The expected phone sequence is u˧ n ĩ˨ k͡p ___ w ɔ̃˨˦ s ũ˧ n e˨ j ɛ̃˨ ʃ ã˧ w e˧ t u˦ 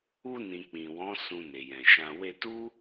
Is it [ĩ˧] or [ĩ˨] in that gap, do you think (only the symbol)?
ĩ˨